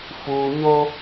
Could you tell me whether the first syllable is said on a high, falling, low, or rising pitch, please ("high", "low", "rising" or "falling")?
low